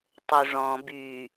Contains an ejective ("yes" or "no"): no